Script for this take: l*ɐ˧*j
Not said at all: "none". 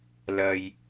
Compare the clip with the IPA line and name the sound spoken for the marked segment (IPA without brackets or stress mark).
ɐ˧